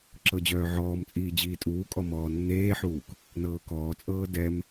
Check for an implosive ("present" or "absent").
absent